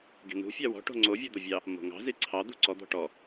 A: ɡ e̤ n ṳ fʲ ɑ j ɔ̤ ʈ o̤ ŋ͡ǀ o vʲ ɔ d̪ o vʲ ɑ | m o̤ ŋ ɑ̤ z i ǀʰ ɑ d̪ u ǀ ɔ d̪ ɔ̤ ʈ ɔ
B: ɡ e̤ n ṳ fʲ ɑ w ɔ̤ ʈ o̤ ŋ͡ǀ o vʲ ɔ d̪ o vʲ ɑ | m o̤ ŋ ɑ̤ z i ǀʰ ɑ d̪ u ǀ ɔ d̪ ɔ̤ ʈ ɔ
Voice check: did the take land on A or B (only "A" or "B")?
B